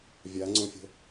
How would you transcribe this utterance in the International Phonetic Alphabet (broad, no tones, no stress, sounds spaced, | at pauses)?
vʲ a ŋ͡ǀ õ fʲ ə̤